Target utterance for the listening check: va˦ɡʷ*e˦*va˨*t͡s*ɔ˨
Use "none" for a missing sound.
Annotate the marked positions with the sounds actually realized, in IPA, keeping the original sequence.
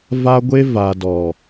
e˦, d

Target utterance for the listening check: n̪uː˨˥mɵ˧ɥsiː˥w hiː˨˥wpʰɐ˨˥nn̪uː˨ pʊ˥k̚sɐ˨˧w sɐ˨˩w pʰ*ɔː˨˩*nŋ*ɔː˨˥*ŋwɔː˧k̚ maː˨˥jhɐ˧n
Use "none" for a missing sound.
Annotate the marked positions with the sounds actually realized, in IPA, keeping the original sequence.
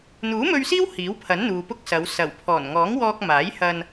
ɔː˨˩, ɔː˨˥

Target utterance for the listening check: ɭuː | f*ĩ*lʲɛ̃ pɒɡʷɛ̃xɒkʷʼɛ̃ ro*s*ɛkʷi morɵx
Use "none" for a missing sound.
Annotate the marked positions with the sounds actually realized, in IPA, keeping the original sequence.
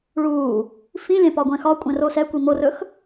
ĩ, s

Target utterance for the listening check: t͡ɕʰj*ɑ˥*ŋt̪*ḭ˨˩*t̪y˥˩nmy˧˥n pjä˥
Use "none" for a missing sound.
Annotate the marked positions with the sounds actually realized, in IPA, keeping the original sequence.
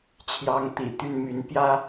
ɑ˧˥, ḭ˨˩

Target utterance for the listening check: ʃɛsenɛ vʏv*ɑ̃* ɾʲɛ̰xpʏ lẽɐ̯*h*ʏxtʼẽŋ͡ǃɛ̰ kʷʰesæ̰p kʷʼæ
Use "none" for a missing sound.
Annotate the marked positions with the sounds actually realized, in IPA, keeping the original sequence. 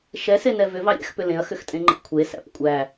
ɑ, x

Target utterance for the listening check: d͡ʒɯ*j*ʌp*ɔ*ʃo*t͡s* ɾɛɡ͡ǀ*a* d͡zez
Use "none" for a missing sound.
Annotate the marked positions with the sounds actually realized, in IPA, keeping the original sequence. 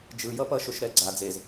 j, ʌ, ʃ, a

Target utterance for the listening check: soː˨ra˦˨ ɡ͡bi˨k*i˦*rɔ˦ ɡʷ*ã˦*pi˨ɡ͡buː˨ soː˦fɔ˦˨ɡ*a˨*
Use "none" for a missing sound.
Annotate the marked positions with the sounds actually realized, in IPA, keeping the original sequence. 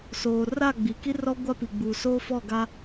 i˦, a˦, a˦

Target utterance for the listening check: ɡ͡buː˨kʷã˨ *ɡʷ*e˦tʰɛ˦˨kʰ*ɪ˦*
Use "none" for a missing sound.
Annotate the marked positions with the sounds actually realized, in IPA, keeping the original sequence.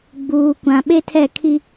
ɓ, i˦

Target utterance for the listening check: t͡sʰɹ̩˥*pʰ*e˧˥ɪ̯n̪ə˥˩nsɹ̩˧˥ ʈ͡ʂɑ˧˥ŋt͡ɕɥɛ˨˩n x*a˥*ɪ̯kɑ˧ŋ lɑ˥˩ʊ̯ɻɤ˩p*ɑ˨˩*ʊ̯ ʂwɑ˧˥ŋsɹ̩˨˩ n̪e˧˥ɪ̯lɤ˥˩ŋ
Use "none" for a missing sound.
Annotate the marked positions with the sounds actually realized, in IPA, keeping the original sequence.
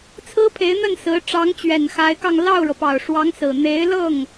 pʰ, a˧˥, ɑ˨˩

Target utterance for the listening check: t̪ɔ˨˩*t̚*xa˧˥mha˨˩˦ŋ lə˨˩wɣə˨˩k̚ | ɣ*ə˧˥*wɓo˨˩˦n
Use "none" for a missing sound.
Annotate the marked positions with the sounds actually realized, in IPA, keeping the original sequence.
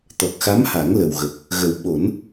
k̚, ə˨˩

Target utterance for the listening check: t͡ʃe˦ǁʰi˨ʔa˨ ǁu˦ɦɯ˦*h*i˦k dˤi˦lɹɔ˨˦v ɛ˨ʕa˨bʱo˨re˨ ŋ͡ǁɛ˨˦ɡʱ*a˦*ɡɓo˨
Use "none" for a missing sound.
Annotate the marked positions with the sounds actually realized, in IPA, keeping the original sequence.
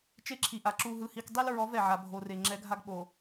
h, a˦

